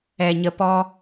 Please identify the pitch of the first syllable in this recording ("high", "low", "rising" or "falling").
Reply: low